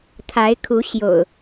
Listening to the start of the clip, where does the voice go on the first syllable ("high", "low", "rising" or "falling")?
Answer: rising